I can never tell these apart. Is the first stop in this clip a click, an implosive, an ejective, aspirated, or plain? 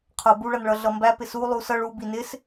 aspirated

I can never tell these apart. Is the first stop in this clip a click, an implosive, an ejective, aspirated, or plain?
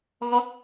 plain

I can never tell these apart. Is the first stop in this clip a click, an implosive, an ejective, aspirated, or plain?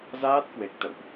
plain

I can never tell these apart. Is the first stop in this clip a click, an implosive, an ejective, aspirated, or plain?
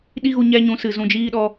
implosive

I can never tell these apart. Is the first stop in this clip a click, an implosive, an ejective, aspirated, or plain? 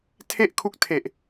aspirated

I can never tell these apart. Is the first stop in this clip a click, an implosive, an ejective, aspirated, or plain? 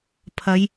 aspirated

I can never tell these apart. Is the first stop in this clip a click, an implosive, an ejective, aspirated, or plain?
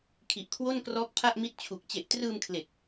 aspirated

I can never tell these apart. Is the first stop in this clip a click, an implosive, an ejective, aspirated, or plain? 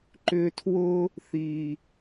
click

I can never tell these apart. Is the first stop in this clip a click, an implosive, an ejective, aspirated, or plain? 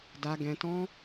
plain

